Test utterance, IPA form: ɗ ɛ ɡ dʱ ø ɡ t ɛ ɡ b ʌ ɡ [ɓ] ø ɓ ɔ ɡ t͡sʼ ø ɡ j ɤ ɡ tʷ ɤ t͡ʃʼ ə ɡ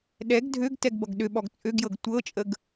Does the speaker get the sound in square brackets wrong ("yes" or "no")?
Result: yes